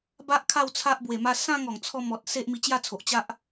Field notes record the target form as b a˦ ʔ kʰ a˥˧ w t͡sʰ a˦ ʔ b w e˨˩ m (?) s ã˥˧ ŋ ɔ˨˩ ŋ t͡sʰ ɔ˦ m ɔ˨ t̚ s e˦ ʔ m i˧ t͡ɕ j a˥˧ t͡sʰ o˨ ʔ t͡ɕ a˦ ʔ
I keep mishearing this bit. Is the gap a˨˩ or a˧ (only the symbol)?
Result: a˧